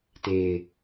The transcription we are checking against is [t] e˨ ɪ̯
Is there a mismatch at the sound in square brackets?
no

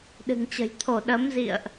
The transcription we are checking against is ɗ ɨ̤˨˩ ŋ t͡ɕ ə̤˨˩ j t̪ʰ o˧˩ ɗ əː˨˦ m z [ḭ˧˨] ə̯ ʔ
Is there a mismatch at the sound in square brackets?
no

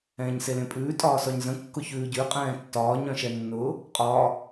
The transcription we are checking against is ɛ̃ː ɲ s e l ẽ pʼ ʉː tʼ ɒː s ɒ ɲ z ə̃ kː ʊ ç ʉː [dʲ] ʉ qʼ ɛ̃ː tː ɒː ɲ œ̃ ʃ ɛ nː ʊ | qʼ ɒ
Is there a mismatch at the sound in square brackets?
yes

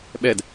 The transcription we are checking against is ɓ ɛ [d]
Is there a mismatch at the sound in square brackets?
no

